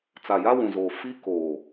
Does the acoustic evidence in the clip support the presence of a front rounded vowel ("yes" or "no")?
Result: no